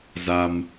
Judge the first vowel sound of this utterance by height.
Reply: low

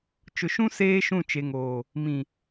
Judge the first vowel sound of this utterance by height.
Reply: high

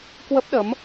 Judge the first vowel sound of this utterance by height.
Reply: mid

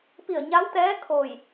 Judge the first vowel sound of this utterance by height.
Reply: high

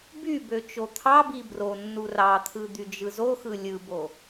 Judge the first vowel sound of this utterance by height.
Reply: high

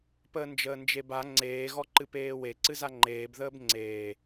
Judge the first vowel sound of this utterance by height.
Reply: mid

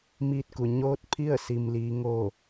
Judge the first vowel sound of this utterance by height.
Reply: high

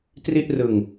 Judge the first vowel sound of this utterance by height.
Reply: high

